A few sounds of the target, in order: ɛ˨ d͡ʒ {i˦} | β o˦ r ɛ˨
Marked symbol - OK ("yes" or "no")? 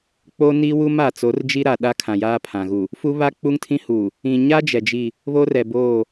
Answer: no